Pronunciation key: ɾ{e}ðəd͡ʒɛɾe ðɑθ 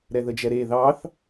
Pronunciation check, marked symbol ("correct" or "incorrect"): incorrect